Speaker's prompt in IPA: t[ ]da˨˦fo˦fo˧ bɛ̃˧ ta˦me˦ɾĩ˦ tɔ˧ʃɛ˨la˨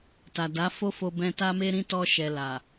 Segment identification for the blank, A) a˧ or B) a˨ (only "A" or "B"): B